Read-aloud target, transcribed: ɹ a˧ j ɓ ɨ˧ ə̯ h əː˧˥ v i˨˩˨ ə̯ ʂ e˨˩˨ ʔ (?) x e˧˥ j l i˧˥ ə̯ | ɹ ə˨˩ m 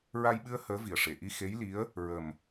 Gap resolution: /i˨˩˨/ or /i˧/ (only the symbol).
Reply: i˧